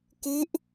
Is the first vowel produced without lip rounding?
no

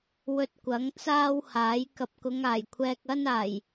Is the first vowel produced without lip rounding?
no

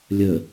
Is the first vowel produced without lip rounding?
yes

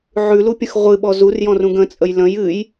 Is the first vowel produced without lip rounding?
no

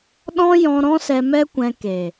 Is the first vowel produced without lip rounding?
no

